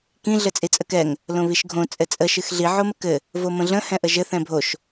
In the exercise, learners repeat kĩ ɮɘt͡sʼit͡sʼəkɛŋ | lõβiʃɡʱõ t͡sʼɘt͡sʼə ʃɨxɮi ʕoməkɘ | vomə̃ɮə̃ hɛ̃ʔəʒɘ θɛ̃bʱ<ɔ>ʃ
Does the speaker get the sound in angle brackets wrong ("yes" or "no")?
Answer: yes